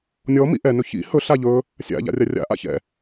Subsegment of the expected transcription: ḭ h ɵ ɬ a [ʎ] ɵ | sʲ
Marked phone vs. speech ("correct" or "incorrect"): correct